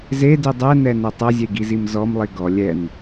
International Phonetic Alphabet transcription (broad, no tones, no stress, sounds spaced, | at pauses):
z e d i dˤ ɛ n ɛ n ɛ tˤ ɐ zʲ e ɡ i z i m z ɔ m lˠ i ɡ ɔ lʲ ɛ n